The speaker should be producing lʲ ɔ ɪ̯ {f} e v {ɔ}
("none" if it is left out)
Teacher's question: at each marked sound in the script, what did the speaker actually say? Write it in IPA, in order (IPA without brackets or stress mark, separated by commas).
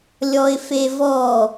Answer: f, ɔ